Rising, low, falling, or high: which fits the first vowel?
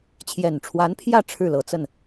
low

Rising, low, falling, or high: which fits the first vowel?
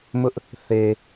high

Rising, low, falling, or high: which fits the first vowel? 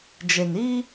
low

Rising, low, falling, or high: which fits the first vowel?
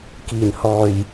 low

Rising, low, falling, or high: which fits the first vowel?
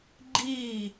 falling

